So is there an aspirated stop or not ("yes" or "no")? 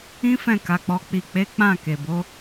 no